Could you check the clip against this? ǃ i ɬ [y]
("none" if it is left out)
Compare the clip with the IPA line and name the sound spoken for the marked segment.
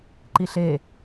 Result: e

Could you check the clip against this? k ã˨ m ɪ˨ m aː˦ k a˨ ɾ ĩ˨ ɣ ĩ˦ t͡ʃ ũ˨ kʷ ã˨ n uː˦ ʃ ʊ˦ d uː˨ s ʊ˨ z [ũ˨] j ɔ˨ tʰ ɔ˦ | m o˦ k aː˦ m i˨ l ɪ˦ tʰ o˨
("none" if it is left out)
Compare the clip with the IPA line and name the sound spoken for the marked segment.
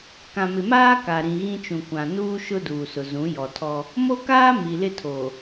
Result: ũ˨˦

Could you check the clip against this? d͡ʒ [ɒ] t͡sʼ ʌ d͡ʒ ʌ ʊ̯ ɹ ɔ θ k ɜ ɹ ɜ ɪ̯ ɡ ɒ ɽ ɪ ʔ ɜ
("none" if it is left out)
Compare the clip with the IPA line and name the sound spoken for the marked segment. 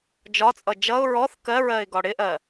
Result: ɒ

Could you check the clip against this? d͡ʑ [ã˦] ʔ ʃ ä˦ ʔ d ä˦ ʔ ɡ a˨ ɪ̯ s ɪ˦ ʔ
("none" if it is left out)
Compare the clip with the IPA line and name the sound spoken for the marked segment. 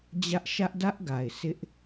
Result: ä˦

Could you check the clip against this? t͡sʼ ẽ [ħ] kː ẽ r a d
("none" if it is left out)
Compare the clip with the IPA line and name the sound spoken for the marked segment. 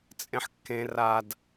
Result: ħ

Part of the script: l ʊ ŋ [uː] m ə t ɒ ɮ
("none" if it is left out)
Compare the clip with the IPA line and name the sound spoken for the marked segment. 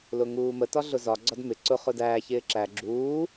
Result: uː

